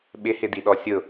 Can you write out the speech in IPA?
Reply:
ɓɪhɪdiɗɔ sʲʊ

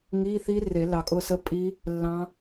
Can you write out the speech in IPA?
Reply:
ŋi˧˥˧θi˦˥re˨˩˦ lɑ˨kʼʊ˦˨sə˦˥ pʼi˦˥ | lːɑ̃˦˥

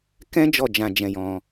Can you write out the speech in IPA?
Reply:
kɛ̃˦ d͡ʒɔ˦˨d͡ʒã˧d͡ʒɛ̃˧jɔ̃˧

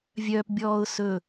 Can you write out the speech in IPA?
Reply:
vʲœːp bʲɔːʊ̯ sɵ

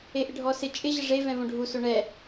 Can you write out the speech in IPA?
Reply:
eʔɪɖʱɔ sɪ t͡ʃʼɪ ʑɪʐe vɛ̃võɖʱuso ɳɛ

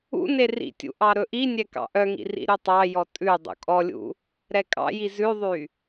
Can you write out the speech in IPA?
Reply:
ṵne rḭtʲṵ ʔɑɾɵʔinʲɛ kɑ̰ʔœŋḭ rḭɾytˤɑjɔ tʼʉ dˤṵkʼɔlʲṵ | ɾɛkʼɑ̰ji zʉðˤy

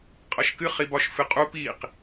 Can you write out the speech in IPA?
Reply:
qʼʌʃkɨ χibɒʃfɨqʼu piq

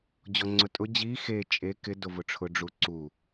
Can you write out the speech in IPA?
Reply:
d͡ʑɔŋ͡ǀʊtʼʊ d͡ʑi xe t͡ʃʼe kɪ dovʊʈ͡ʂʰʊ ɖ͡ʐuǀu

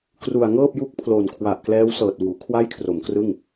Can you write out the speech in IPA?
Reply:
kru˨˩a̯ŋɤː˥˩p̚ju˦˥k̚pʰlo˨˩n kʰwa˨˩ʔklɛː˦˥w sɤː˨˩t̚wuː˩˦ kʰwa˥˩jkʰro˩˦mkrɯ˥˩ŋ

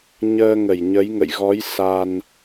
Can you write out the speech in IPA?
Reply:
ɲəː˧ŋə˧˩jɲə˨˦j ŋə̰˧˨jɣɔ˨˦j sa˧n

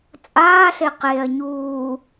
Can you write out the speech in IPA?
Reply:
t͡sʼaːɬe qeɐ̯ ɲuː

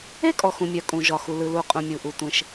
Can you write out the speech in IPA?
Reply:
e˥kʼɔ˩xũ˩mʲœ˩ kʼũ˩ʒɒ˩xu˩lɯ˩ lu˩qʼũ˩mʲu˩ʔu˩ tʷẽ˩ʃ

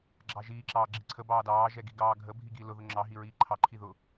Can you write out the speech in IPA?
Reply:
ɡ͡ǁɑʒiː ǁɑːɡ͡ǁiǀʰə bɑːdɑː ʒɛɡiɡɑːɡʱə bʱiɡilʊ ðʊŋ͡ǁɑ ɦiɹiːǃʰɑ ǃʰiðʊ

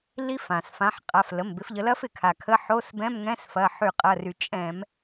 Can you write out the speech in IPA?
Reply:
li˦˥ fã˩sfã˨˦ħqʼa˩˧˩f lə˩˧˩mbɪ˨˦fʎə˨˦ lɐ˦˥fɪ˩ kʰa˩kʰə˧˥˧ ħo˧˥˧s bɛ̃˧˥˧mŋɛ̃˧˥˧s fɐ˩˧˩ħy˧˩˧qʼɐ˩˧˩ry˩ t͡ʃʼɛ̃˧˩˧m

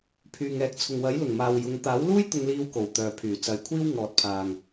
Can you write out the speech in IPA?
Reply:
pʰyː˨ŋɛː˨˥k̚t͡sʰʊ˨ŋ wɐ˨˥jlʊ˨˩ŋmaː˨w jʊ˨˧ŋ t̪aː˨˥wluː˥j t̪ʊ˧ŋliː˧wko˨˩wt̪œː˨˩ pʰyː˨˩t͡sɐ˨jkʷʰiː˥w ŋɔː˨t̚pʰaː˨ŋ

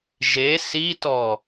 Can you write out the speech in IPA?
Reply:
ʒe sitɔ

